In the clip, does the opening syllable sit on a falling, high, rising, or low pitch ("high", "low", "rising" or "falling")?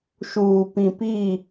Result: low